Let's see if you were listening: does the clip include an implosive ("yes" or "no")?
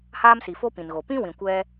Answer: no